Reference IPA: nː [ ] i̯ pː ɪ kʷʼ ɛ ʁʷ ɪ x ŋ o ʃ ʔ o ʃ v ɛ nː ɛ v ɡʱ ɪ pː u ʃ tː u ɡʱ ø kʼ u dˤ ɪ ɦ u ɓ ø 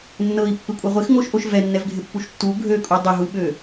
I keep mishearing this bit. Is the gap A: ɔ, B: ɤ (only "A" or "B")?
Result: B